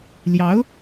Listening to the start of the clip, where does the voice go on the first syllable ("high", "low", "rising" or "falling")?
rising